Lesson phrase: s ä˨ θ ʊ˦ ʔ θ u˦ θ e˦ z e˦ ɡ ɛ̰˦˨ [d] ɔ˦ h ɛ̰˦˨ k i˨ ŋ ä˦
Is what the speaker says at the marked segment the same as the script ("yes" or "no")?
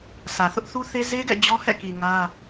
no